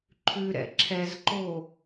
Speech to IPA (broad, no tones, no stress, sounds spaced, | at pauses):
ǃʰ ʉ ɾ ɛ̰ ǁʰ ɛ z ǃ o